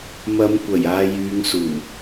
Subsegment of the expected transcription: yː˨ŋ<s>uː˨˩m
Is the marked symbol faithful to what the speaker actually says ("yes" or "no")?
yes